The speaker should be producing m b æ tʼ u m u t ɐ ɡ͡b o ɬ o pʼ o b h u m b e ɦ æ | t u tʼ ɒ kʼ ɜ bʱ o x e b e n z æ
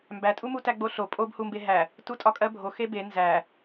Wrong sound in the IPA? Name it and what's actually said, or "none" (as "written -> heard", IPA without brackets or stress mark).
ɐ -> æ